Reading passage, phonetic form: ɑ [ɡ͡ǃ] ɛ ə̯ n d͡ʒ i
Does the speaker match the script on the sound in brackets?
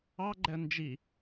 yes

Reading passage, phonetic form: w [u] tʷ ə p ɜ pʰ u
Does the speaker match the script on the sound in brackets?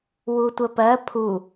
yes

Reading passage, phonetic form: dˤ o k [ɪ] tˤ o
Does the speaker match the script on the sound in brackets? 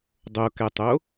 no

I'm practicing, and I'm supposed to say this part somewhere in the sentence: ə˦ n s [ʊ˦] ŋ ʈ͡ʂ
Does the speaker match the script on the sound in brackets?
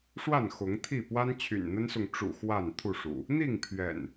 no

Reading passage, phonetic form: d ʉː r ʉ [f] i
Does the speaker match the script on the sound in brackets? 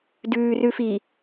yes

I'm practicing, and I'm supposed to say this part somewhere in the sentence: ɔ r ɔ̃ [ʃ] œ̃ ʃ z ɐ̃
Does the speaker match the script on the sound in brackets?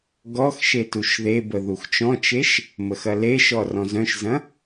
no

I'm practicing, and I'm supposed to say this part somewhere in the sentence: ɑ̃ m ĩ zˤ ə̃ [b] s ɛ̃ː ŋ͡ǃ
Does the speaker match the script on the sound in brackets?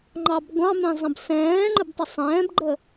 yes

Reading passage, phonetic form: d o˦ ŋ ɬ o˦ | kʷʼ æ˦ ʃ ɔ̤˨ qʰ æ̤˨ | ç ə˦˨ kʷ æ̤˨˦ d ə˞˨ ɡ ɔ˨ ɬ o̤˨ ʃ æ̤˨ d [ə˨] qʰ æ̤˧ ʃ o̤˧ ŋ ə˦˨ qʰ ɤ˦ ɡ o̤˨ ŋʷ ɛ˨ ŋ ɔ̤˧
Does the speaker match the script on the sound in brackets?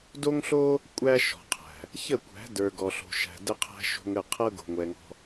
no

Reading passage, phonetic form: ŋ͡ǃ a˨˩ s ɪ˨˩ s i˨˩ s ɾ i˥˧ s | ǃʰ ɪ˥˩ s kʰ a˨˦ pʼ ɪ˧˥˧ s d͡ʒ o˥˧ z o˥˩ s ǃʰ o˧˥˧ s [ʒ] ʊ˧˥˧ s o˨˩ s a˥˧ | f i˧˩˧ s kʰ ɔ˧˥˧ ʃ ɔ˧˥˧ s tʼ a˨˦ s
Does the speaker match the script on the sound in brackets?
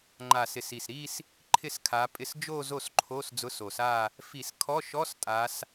no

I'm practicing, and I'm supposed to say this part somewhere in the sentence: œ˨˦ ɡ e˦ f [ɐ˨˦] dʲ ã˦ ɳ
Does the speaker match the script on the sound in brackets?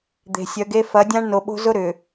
yes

